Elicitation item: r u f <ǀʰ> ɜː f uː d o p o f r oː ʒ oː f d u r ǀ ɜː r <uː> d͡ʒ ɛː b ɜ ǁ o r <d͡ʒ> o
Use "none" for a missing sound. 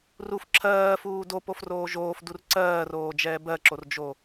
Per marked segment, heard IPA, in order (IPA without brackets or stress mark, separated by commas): ǁʰ, oː, d͡ʒ